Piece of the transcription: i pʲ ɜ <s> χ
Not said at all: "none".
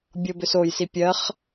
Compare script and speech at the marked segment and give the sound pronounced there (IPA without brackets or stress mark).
none